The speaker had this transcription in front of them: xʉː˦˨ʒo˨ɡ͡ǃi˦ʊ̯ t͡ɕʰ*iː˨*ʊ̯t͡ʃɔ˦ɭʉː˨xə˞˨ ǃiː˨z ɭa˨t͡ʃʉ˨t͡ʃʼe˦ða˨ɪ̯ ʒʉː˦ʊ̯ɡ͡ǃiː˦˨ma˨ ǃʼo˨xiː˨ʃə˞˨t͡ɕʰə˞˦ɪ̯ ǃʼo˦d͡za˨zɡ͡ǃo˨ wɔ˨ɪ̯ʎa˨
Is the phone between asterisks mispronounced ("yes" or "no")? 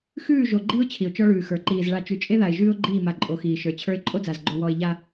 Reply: yes